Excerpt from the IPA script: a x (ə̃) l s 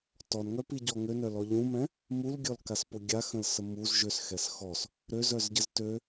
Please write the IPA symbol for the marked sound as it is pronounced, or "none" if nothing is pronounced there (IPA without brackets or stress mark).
ə̃